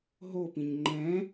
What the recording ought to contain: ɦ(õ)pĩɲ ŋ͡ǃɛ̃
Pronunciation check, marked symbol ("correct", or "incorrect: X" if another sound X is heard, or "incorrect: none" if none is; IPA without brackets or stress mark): incorrect: o